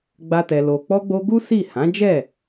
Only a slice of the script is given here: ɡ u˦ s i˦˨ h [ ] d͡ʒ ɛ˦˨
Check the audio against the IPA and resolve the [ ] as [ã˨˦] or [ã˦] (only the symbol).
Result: ã˨˦